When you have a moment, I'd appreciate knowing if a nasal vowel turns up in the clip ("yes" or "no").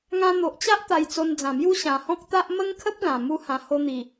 yes